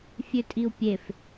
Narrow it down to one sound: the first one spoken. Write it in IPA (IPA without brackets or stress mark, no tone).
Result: fʲ